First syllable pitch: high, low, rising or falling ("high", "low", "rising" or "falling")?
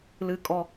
high